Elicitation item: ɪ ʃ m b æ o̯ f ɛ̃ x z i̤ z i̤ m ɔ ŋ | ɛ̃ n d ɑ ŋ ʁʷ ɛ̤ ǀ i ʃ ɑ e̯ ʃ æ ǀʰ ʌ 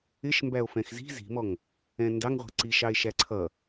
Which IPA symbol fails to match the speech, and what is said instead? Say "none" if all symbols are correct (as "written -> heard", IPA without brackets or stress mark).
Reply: none